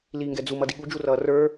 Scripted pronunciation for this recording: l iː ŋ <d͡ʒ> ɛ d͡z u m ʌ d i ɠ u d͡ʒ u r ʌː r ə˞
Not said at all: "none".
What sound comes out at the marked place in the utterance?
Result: ɡ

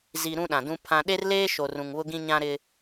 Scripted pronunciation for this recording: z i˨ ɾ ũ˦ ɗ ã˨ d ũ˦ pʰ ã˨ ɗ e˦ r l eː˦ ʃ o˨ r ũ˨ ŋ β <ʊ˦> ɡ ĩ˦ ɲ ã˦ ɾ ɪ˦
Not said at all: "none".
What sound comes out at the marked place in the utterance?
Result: ʊ˦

